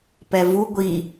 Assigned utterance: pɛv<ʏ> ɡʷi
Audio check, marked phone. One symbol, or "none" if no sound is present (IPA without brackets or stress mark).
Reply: u